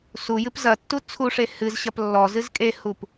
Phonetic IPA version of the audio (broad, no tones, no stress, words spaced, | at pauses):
sujɨp zɐtːu t͡sʰuʂe hɨzɕɐp lːɔzɨz kʼehup